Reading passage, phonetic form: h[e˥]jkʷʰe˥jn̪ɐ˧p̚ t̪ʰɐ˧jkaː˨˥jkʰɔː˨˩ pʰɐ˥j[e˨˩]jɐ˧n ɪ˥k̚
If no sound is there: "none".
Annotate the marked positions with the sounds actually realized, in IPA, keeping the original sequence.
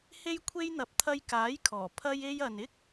e˥, e˥

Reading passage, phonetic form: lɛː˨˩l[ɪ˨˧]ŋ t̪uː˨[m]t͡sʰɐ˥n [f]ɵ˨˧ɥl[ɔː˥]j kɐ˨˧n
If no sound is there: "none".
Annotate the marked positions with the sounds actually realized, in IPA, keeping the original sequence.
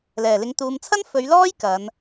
ɪ˨˧, m, f, ɔː˥

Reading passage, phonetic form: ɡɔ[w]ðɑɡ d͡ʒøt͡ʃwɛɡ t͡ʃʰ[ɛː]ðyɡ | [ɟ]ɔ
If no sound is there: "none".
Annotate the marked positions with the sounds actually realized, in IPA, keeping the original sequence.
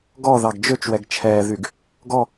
none, ɛː, ɡ

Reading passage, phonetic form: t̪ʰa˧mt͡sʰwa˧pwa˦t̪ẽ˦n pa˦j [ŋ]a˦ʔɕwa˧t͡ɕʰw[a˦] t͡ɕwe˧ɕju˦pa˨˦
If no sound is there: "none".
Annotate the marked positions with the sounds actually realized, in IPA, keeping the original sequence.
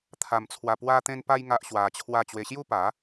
ŋ, a˥˧

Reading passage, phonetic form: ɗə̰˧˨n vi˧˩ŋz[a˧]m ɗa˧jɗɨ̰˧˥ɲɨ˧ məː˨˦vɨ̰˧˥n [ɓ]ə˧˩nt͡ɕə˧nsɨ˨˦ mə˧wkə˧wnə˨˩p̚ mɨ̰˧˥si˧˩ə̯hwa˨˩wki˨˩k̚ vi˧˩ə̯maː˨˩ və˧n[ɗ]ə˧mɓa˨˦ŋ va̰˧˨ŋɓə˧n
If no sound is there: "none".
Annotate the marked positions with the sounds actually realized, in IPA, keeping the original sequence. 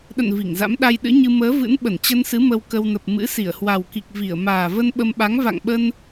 a̰˧˥, ɓ, ɓ

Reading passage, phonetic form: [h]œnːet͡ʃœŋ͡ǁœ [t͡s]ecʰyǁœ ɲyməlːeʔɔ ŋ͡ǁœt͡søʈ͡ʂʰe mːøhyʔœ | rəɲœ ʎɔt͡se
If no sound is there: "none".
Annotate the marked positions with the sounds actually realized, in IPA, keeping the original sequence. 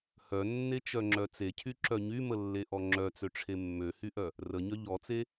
h, t͡s

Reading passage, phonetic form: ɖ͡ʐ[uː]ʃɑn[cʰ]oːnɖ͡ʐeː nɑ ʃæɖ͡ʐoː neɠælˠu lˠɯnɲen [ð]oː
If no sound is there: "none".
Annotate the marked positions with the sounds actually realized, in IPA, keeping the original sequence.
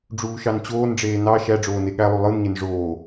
uː, t͡ɕ, ʐ

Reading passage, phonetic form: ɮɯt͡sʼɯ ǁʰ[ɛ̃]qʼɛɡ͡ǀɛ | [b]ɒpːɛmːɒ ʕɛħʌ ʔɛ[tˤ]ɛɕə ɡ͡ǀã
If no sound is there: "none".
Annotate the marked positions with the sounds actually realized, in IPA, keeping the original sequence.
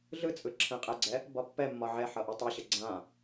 ɛ̃, b, tˤ

